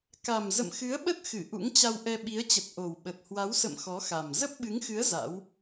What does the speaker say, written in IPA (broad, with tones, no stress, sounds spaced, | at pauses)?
k a˨˩ m z ə̰˧˨ m x ɨ˨˦ ə̯ ɓ ə˦˥ t̚ x ɨ˧˩ ʔ ṵ˧˥ ŋ t͡ɕ a˧ w ʔ ɛ˧ ɓ i˨˦ ə̯ t͡ɕ ə˨˩ t̚ ʔ o˨˩ w ɓ ə˨˩ t̚ h w a˨˦ w s ə̰˧˨ m x ɔ˨˦ x a˨˩ m z ə˦˥ p̚ ɓ ɨ˨˦ ŋ x ɨ˨˦ ə̯ z a̰˧˥ w